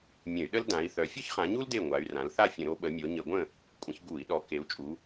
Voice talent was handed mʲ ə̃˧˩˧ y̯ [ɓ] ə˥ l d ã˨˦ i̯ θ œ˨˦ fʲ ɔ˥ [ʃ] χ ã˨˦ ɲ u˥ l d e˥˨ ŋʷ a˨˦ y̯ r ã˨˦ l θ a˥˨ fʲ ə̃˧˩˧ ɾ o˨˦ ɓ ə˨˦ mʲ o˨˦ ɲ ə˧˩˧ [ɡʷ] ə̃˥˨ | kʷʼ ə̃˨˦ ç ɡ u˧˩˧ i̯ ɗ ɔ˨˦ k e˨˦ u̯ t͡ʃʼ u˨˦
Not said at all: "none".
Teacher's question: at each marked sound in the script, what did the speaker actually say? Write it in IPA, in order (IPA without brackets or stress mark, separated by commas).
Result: ɗ, ç, ɡʷ